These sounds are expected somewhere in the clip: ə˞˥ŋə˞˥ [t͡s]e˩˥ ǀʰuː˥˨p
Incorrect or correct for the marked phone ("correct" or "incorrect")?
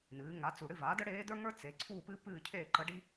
correct